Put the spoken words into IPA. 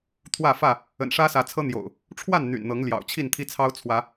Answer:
t̪ʰwä˥˨fä˥˨ | ə̰˨˩nʂä˦sä˨˦t͡sʰɤ˦ n̪jo̰˨˩ʊ̯ | ʈ͡ʂʰwa˥˨n n̪y̰˨˩nn̪ɤ˨˦ŋljɑ̰˨˩ʊ̯ t͡ɕʰi˥˨nt̪ʰi˦ t͡sʰɑ˦ʊ̯t͡sʰwä˨˦

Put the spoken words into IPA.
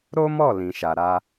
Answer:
ɾo˦mɔ˦˨ lĩ˨ʃa˨ ɾa˧

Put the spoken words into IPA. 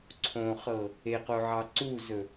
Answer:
ǀʰõχɤ | eqoʕɑ ǀuzɵ

